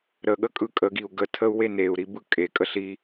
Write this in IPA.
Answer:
ɾ ə ɠ ə kʼ ɯ kʼ ə ɡ i u̯ ɡ ə tʰ ə u̯ w e n e u̯ ɾ i b ɯ kʼ e kʼ ə ɬ i

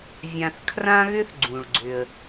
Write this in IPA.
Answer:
vʲ ã˧ θ kʰ r ã˥ ɣ ʏ˥ θ ɡ͡ǀ ũ˩ ɭ ɡ͡ǀ ʏ˩ ə̯

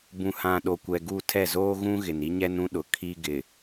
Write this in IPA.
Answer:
b ũ˨ h ã˨ ɗ o˨ kʷ ɛ˨ ɡ u˦˨ tʰ ɛ˦˨ z oː˦ ɣ ũ˦ ɣ ɪ˨ n i˦ ɲ ɛ˦ n ũ˦ ɗ ʊ˨ kʰ i˦ ɡ ɪ˨

